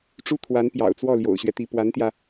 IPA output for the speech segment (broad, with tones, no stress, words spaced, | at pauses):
ʈ͡ʂu˥t̪ʰwa˧˥n pjɑ̰˨˩ʊ̯t͡swɔ˥˩ ljo̰˨˩ʊ̯ɕɥɛ˦t̪i˧˥ pwa˧˥nt̪jä˧